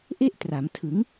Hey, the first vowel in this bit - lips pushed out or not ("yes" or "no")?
no